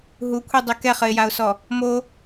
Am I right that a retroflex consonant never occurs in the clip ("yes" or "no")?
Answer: yes